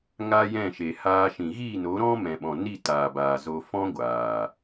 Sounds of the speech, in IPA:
ŋaː˦jɛ̃˦˨ʃe˨ haː˧ʃĩ˨ ɣi˦˨no˨˦ɾɔ̃˦ mɛ̃˨ɓɔ̃˨ni˦˨ taː˨ baː˨zo˧ fɔ̃˦ɡʷaː˨

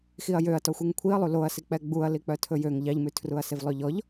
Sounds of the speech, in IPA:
xiɐ̯jøɐ̯ tɔxʷiŋkʷʰiɐ̯lˠu loɐ̯sik͡pɛ ɡ͡buɐ̯ lik͡pœtʰɵjøŋ ʎɑʎmʉ tʰruɐ̯sevlˠøʎɔʎ

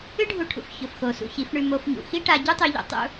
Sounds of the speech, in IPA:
ɨ˦ɖʱu˧ʈʰṵ˨f çɵ˨fxo˨ sṵ˧çi˨˦fɳʉ˧ mo˧fɲṵ˨ xi˦ʈa˧ ɟʉ˦tˤʉ˧ʎṵ˨ tˤṵ˦

